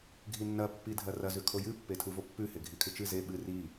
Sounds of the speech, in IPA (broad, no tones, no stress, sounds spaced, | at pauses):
ɡʱ i nː ɐ pː i dʱ ɐ r ɐ z ʉ kʰ o j ɨ pː e tʰ u v o pː ʉ h e ɡʱ i kʰ ɨ t͡ʃ ɨ z e ɓ ɨ r i